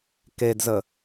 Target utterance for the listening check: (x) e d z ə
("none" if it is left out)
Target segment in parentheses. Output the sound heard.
k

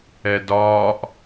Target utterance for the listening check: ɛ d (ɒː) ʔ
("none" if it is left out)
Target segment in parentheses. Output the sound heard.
ɒː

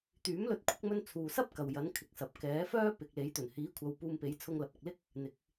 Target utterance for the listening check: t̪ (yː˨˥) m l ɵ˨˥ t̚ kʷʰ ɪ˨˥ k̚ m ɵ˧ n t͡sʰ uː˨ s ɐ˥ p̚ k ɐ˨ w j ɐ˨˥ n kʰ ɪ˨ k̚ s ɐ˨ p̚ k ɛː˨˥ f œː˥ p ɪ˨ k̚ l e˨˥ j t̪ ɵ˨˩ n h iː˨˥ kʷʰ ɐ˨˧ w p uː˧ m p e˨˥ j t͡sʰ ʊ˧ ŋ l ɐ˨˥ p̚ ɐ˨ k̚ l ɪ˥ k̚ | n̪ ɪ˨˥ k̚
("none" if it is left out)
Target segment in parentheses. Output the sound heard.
yː˨˥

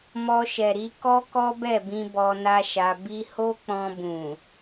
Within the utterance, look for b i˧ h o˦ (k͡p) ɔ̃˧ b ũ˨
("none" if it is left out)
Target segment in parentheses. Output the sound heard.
k͡p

